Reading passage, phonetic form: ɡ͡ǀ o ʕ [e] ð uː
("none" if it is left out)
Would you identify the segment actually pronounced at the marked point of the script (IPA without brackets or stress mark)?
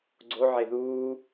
e